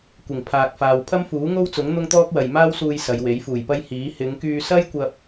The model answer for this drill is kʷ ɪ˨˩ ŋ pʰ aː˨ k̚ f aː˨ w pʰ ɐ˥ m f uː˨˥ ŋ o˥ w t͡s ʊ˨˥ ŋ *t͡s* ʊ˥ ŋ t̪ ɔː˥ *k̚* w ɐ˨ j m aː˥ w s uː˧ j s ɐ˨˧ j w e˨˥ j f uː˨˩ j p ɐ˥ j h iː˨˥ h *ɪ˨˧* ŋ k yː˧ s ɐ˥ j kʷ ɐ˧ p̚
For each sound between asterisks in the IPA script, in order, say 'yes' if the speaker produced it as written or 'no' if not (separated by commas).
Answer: no, yes, yes